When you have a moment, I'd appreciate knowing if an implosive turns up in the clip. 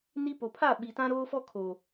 yes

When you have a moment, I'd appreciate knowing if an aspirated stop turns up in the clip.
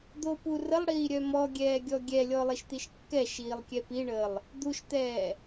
no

